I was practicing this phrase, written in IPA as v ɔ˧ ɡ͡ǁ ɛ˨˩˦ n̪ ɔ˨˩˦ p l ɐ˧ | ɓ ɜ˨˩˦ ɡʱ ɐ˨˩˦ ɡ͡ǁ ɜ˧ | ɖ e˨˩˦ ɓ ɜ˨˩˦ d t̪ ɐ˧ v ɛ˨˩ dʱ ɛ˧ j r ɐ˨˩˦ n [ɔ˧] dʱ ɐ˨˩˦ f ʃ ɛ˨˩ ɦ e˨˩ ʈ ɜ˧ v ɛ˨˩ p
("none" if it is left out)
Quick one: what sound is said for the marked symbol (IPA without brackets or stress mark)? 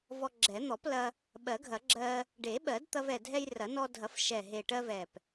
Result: ɔ˧